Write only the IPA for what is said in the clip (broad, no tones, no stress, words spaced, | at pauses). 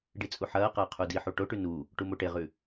ɖit͡sʼuħɐːqɐː qʰudiħu ʈoʈʉ nu | ʈumoʈeʁʉ